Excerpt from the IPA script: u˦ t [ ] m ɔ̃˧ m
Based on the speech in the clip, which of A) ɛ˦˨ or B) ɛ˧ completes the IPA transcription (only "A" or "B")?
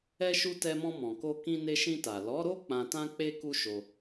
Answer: B